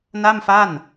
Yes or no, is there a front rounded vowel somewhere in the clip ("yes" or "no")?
no